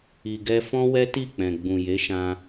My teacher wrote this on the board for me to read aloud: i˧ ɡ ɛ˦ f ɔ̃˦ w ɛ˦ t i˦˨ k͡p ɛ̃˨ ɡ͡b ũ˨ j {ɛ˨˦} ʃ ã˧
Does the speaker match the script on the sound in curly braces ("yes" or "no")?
no